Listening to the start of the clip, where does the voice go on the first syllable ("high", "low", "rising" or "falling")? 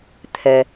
low